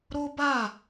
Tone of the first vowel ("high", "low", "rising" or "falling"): high